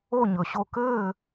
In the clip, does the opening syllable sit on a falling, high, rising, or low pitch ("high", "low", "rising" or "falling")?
falling